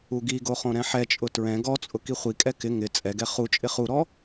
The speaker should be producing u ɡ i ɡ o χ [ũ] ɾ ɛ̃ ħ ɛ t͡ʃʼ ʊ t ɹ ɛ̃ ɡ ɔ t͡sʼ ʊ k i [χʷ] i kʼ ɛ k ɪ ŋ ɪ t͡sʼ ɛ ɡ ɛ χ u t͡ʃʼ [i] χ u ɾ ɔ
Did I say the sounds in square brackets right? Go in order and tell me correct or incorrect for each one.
incorrect, correct, incorrect

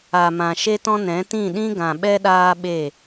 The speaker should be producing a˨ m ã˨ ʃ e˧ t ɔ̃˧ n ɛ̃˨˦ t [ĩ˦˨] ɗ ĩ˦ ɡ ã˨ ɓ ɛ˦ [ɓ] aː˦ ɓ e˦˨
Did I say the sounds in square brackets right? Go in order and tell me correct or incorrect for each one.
correct, incorrect

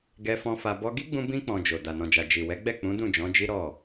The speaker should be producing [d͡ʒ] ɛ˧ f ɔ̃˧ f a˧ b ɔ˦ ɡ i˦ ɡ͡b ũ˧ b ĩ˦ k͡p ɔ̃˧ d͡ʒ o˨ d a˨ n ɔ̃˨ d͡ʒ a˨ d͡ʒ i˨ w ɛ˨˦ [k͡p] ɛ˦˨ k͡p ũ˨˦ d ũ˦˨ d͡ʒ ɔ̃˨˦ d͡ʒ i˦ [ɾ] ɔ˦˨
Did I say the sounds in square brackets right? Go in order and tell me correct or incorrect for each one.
incorrect, incorrect, correct

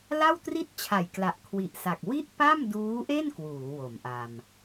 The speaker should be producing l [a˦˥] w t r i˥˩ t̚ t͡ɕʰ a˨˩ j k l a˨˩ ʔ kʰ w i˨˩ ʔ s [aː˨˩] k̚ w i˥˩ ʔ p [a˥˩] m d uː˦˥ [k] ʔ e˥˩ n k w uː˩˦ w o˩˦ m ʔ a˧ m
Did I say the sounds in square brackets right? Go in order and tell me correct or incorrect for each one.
incorrect, incorrect, correct, incorrect

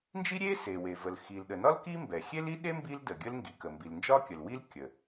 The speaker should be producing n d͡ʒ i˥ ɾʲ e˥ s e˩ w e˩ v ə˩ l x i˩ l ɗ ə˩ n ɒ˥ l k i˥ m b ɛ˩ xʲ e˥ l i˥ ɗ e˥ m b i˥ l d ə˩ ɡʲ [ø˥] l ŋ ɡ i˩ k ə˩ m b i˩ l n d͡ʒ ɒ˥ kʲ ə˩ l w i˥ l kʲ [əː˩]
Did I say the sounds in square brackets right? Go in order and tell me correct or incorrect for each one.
incorrect, incorrect

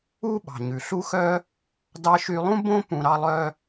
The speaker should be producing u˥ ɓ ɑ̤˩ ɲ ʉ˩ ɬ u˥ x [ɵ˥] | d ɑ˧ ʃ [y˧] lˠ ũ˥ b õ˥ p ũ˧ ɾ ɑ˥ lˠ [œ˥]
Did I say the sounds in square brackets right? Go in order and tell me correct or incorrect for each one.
incorrect, correct, correct

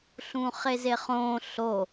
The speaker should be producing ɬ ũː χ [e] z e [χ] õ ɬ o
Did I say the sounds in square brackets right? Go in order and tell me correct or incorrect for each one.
correct, correct

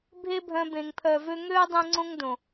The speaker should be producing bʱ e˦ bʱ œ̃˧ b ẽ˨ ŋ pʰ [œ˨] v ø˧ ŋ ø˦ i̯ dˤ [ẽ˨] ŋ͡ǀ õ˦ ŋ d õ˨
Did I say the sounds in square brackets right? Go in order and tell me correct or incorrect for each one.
correct, incorrect

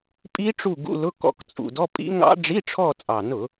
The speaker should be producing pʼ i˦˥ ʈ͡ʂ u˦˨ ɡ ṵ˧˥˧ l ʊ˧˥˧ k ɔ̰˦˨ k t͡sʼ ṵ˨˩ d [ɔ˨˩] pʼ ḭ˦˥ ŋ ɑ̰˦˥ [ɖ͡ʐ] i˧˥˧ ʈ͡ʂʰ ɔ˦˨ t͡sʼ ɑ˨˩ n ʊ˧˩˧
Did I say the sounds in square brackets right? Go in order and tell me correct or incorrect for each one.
incorrect, correct

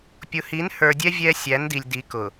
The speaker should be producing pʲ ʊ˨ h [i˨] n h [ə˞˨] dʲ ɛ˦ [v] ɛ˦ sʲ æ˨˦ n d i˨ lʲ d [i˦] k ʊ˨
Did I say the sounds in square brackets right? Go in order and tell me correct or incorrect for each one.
incorrect, correct, incorrect, incorrect

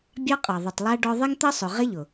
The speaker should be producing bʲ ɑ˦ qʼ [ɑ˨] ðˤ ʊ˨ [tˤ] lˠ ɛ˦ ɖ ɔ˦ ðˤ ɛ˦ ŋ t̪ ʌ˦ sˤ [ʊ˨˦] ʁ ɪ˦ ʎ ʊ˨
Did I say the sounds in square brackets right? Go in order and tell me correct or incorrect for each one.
correct, correct, incorrect

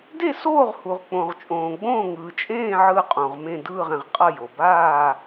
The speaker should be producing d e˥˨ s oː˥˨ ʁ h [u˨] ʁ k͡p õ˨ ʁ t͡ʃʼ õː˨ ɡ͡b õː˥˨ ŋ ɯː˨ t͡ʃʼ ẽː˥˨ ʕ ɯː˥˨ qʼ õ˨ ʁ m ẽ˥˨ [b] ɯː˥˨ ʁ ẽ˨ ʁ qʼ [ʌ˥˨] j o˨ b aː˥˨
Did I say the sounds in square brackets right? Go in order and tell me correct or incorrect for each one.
correct, incorrect, correct

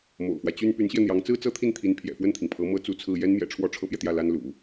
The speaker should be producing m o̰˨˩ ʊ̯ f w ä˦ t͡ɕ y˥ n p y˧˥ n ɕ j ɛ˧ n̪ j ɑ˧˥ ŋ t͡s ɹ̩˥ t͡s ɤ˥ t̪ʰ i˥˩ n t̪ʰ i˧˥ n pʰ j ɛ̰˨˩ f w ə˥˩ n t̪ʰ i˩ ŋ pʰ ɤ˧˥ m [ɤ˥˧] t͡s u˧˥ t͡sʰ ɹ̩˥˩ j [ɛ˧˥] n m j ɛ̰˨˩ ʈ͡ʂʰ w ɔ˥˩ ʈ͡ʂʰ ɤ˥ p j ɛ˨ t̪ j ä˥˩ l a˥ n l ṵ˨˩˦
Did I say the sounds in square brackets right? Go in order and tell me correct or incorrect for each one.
incorrect, incorrect

